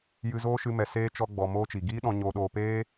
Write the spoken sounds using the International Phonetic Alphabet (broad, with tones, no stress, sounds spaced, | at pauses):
j ɨ˧ z oː˦ ʃ ɨ˧ m ɛ˨ s eː˦ t͡ʃ ɔ˧ ɡ͡b ɔ˨ m oː˦ t͡ʃ i˨ ɡ iː˦ ɗ ɔ̃˧ ɲ oː˧ ɗ oː˧ p eː˦